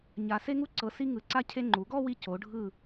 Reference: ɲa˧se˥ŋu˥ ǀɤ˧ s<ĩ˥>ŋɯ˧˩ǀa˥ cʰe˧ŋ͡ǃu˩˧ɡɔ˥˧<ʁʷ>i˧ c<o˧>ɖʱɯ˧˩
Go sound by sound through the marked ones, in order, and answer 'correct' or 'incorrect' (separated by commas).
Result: incorrect, incorrect, incorrect